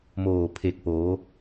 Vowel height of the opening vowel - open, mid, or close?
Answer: mid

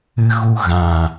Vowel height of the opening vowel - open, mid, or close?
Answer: close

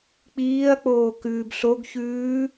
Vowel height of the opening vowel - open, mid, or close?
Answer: close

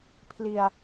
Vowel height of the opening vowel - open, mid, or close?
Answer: close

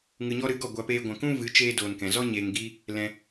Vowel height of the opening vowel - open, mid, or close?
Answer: close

